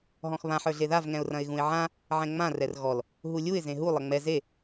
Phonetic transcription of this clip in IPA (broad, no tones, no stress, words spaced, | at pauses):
ɦɔ̃xβãħ ə˞ɮeðav ŋɛ̃ʊ̯rɐ̃ɪ̯ɣũɪ̯ʕã | ʕɛ̃ŋ͡mã rɛrɣɔl | ɦulʲuɪ̯ zẽɦu lˠɐŋ͡mɛ ze